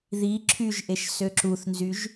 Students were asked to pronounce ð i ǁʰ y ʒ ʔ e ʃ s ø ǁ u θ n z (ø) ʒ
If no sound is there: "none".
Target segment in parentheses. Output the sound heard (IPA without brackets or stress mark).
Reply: y